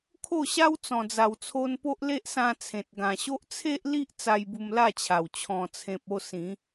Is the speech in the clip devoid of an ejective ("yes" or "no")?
yes